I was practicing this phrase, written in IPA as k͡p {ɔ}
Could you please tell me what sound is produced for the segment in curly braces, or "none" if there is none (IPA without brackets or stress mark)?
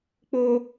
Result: o